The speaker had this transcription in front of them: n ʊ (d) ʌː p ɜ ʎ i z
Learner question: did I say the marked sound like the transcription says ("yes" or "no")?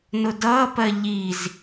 yes